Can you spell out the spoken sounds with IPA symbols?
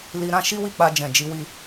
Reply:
l i˧ ɾ ã˦ ʃ i˦ w i˦˨ k͡p a˧ d͡ʒ ɛ̃˨ d͡ʒ i˧ w i˦

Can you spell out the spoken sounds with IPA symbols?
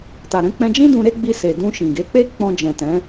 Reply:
t a˨ ɾ ɛ̃˧ k͡p ɛ̃˧ d͡ʒ ĩ˦ d ũ˧ ɾ e˦ ɡ͡b i˧ s e˨ d ũ˧ ʃ ĩ˨ ɡ e˨˦ k͡p e˦ k͡p ɔ̃˧ d͡ʒ ɛ̃˨ t ɛ̃˨˦

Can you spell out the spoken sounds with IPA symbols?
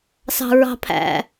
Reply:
s ɑ̤ ɹ ɑ̤ pʰ æ̰

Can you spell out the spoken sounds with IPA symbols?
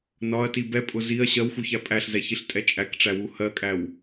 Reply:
n ɒ ɐ̯ t i b ɛ pʼ ʊ z i ɐ̯ ɕ ɜ w x u ç æ pʼ æ ɬ z ɛ ç i ɬ tʼ ɛ t͡ʃʼ æ k ʈ͡ʂ æ w u h ɜ kʼ æ w

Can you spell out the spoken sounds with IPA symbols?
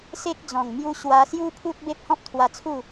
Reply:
s e˦ k̚ d͡z ɔ̃˨˩ ŋ m j u˧ ɕ w a˧ s j u˦ pʰ u˦ t̚ b e˦ p̚ h ɔ̃˦ p̚ t̪ʰ w a˧ t͡sʰ u˥˧

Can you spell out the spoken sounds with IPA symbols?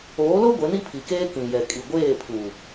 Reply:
oː˨˦ l o˦ ɡʷ e˨˦ n i˦ pʰ i˨ k eː˦ k ĩ˨ j ɛ˨ kʼ i˨ ɡʷ eː˦˨ pʰ u˨

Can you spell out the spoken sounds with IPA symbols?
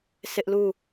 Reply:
s ɪ˦ ʔ l u˦˨

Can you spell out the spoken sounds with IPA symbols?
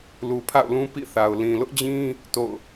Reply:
l u˨ pʰ a̰˦˨ ʊ̯ l ũ˦ p ḭ˦˨ θ a˨ ʊ̯ l ĩ˨ l ʊ˦ ʔ d͡ʑ ĩ˦ | t o̰˦˨ ʊ̯

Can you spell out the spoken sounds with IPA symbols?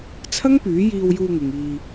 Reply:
t͡sʰ ɐ˥ ŋ p yː˨˥ j iː˧ w j uː˧ ŋ ɪ˨ ŋ iː˧

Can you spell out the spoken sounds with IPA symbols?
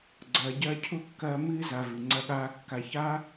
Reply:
ɡ͡ǀ ɐː˨ ɟ ɐː˧ cʰ u˧ kː ɐː˧ m ɨː˧ z a˨ v ɨ˨ ŋ͡ǀ ɐ˧ ɠ aː˧ kː a˧ ç aː˦

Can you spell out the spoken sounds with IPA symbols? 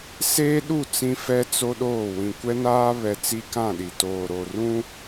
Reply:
s eː˦ ɗ u˦˨ t͡s ĩ˦ f ɛ˦ t͡s o˦ ɗ oː˦˨ w ĩ˨ kʷ ɛ˦ n aː˦ β ɛ˨ t͡s i˦ k ã˦˨ ɗ i˨ t oː˨ ɾ o˨ r ũ˦

